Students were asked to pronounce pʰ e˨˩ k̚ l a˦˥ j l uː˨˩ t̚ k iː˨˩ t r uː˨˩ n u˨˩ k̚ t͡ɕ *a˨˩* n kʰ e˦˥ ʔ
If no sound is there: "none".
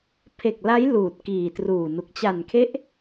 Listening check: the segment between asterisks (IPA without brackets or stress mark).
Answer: a˨˩